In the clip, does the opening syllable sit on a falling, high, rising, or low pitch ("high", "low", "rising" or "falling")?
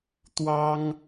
high